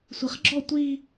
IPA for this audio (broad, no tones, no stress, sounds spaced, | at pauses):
sʷ i χ ɡ͡ǁ ɔ tʷ i